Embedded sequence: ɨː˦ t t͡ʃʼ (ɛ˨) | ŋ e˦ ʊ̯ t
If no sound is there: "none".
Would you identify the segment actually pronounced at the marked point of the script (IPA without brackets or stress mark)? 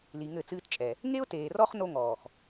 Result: ɛ˨